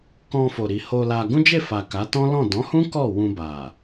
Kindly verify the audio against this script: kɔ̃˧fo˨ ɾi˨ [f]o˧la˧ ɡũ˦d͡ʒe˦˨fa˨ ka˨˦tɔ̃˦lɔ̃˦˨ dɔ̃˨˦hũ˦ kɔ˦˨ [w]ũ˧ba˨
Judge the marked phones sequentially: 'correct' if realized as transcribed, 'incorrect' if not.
incorrect, correct

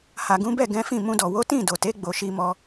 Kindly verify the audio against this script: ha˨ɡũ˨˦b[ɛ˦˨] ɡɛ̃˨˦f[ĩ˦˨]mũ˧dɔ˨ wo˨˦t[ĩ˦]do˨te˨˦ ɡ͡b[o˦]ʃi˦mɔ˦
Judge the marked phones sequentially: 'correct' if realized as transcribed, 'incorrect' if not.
correct, correct, incorrect, incorrect

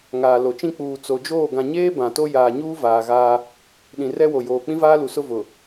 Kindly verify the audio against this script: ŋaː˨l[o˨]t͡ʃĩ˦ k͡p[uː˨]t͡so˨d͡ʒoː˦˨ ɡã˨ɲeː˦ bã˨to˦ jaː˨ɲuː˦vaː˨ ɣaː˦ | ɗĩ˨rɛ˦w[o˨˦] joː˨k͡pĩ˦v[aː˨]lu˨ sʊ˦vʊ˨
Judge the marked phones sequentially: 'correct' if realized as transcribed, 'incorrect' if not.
correct, correct, incorrect, incorrect

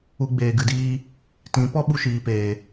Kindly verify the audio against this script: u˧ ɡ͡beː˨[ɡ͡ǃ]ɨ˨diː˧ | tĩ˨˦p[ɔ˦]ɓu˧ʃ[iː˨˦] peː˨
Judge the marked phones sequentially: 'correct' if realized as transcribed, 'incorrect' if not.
incorrect, correct, incorrect

